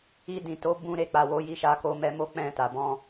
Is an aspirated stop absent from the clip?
yes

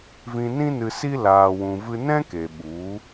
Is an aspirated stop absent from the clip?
yes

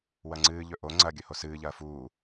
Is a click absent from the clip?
no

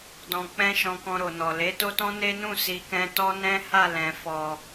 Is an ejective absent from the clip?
yes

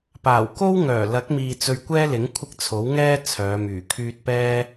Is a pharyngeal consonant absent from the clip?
yes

